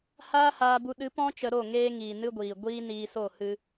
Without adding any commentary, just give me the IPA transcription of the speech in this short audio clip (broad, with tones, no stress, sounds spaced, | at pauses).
h aː˦ h aː˧ b u˧ ɗ ɨ˨˦ p ɔ̃˦ t͡ʃ ə˧ ɾ o˦˨ ŋ eː˧ ŋ iː˨ n ɨ˧ ɡʷ iː˨ ɡʷ iː˦ n iː˧ s o˦˨ h ɨ˧